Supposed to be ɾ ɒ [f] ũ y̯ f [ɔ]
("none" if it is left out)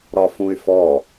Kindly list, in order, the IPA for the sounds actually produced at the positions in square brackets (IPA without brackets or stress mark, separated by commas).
f, ɔ